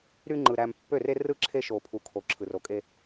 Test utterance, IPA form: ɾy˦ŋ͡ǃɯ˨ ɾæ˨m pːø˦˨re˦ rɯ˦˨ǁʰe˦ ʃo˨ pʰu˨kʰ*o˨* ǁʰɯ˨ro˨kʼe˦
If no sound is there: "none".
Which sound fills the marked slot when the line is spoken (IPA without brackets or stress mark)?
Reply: o˨